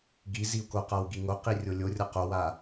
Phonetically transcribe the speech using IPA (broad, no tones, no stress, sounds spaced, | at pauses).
ɡ i z i u̯ k o q a w ɡ i ŋ o q i rʲ o lʲ o rʲ ʌ q o w a